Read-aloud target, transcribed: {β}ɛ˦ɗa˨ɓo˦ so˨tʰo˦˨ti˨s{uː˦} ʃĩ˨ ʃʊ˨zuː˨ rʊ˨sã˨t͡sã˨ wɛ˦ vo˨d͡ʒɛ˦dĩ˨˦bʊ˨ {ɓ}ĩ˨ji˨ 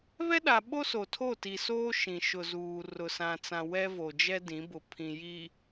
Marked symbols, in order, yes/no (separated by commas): yes, no, no